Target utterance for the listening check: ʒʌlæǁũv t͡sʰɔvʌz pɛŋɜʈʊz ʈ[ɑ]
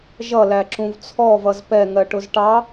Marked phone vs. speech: correct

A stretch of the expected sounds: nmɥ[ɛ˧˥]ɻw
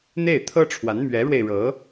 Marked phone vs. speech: correct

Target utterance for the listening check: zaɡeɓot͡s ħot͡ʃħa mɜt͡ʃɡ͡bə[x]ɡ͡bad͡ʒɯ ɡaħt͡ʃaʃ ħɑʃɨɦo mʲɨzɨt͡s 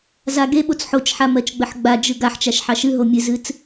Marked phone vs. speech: incorrect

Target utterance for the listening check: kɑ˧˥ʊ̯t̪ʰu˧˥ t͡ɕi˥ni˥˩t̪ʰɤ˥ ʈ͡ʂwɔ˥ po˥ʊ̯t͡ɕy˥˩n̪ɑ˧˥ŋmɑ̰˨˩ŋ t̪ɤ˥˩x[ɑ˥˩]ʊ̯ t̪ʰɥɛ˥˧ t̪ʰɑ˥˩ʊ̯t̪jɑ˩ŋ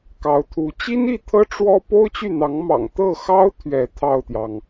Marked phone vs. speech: incorrect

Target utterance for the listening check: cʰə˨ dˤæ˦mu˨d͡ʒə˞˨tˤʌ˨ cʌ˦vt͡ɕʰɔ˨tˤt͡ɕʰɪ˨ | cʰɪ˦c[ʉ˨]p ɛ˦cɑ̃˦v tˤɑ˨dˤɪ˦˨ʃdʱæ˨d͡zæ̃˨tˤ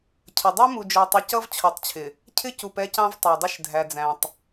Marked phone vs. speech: incorrect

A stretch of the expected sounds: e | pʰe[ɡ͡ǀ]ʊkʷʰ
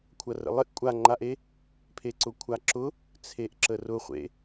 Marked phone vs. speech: incorrect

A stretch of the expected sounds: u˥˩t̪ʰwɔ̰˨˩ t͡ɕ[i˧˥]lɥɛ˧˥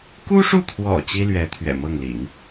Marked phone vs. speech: incorrect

